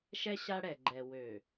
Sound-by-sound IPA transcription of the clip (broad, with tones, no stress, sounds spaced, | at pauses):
ʃ ɛ˦ ɕ a˦ ɽ ɛ˨ ɡ͡ǃ ɛ˨ w ø˨